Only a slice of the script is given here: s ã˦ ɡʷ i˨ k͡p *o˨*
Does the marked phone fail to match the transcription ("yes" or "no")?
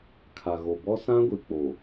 no